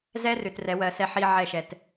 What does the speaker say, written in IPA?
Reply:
zɛ˦rʏ˨t rɛ˨˦wɜ˨ sɛ˦ħi˦ʕɛ˦˨ʃɛ˨t

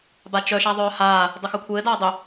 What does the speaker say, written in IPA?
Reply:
bat͡ʃœ ʃaðˤœːhaː | dˤʏxœkʷʰɘː daːdˤʏ

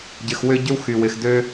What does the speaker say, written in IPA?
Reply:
ɟɪ˨xwʏ˦ ɟʏ˦w xy˩wɪ˩x dø˦

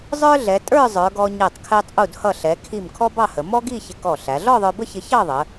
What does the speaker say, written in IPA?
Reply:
zˤə˞˥ ɮɛ˩˧tʼə˞˥˧ zˤə˞˩˧ɡɔ˧ ɲɛ˧˩tˤkʰɛ˧tˤ ʔu˧˩dhʌ˧˩ ɬɛ˩˧ kʰi˧˩m kʰɔ˥bɑ˥˧hə˩˧ mɔ˥ɡi˥˧ çɪ˧ kɔ˧˩ɬæ˩˧ ɮɔ˥˧ðˤə˞˧bə˥˧çɪ˧ çɑ˥˧ðˤə˩˧

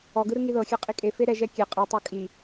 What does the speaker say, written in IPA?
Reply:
ɔɡɯɾɯ ŋiðɤxʲɛ qʼikʼefe ɾɛ ʒɛkʲe qʼɯtˤɤ kʼi

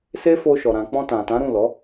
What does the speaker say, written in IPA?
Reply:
se˦fo˧ʃɔ˨ ɾã˨ k͡pɔ̃˧tã˨tã˨˦ ɾũ˦˨lɔ˨˦

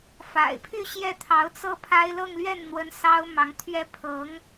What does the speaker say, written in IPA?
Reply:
fa̰˨˩ɪ̯pʰy˥˧ ɕjɛ˥˩t̪ʰɑ˧˥ʊ̯t͡sɤ˥ pʰa˥ɪ̯ lɤ˥˧ŋlɥɛ˥˩nn̪wə˧˥n sɑ˥ʊ̯mɑ˧˥ŋt̪ʰɥɛ˥ pʰɤ˧˥ŋ

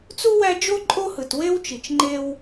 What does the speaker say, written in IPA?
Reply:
t͡su˥wæ˦d͡ʒo˥ ǃʼo˥hɯ˨twe˥wt͡ʃi˨t͡ʃ ŋ͡ǃe˦w

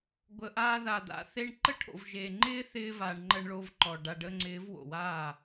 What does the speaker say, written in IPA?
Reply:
ɡʷə˨ʔaː˧ða˨ d̪a̰˨ θe˦ɳ ǃə˦ʈʰo̰˨vʒe˨ ŋ͡ǃɪː˦θɪː˧ va˨ɳ ŋ͡ǃə˧ɳɭo˧v ǃɔ˨ ɖa˨ɖə˧ŋ͡ǀɪː˨˦v wo̰˨waː˦˨

